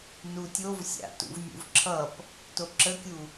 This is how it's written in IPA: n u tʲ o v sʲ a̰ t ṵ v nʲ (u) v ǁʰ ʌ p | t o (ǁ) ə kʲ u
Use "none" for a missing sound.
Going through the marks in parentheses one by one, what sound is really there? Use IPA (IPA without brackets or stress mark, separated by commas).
ṵ, ǁ